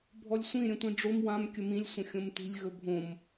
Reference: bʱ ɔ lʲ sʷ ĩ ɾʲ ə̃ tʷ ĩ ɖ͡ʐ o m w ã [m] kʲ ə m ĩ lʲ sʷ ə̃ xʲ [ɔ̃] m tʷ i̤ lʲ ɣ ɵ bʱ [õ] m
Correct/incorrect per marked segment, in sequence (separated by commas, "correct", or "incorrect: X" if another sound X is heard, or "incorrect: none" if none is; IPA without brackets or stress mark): correct, incorrect: õ, correct